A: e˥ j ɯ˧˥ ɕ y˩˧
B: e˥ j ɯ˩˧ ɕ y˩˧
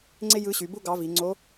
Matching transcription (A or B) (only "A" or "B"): A